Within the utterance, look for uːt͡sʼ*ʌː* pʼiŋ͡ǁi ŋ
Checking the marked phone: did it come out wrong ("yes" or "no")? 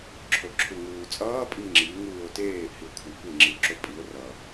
no